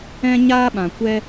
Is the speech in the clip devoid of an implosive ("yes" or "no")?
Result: no